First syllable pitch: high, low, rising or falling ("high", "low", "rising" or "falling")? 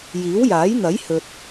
rising